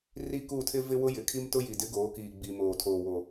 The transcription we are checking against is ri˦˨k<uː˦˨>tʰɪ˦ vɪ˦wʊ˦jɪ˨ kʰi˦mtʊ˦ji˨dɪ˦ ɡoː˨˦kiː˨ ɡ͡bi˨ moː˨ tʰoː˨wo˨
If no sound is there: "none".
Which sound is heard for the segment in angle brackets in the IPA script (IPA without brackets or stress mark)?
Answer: uː˦˨